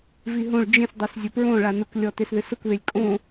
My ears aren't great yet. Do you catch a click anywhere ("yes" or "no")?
no